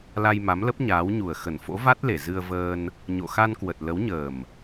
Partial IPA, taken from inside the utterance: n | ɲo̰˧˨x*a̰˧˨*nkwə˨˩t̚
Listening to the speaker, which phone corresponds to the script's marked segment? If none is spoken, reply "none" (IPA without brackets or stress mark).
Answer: a˧